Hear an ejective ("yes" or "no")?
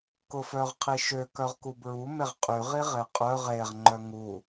yes